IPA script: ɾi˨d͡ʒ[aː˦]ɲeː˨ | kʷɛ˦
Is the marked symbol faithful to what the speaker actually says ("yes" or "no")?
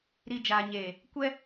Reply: no